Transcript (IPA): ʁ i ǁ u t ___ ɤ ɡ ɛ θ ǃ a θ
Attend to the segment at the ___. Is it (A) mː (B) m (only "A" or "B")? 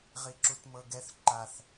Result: B